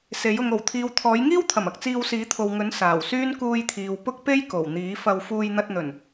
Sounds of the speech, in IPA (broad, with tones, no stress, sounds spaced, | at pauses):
s e˨˥ j ʊ˧ ŋ o˨˩ w t̪ʰ iː˨˧ w t̪ʰ ɔː˨˥ j ŋ iː˥ w t̪ʰ ɐ˨˩ m ɐ˨ k̚ t͡s iː˧ w s iː˨˥ t̪ʰ o˨ w ŋ ɵ˨˥ n s aː˨˩ w s yː˥ n k uː˧ j t̪ʰ iː˨ w p ʊ˥ k̚ p e˥ j k o˨˩ w n̪ iː˨˥ f ɐ˧ w f uː˧ j n̪ ɐ˧ t̚ n̪ ɵ˨˩ n